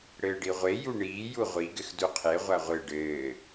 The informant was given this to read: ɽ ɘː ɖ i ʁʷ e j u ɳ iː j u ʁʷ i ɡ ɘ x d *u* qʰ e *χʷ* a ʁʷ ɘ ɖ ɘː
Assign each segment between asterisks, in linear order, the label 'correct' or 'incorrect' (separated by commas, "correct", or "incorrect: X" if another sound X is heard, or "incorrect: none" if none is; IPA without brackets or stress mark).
correct, incorrect: ʁʷ